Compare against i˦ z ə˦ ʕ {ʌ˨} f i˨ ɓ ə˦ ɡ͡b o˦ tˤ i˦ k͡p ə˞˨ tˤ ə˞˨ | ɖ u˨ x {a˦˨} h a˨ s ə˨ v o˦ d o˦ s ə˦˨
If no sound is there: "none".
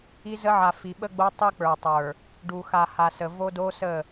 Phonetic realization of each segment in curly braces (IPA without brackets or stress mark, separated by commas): a˨, a˨